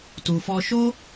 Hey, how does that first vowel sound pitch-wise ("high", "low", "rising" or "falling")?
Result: low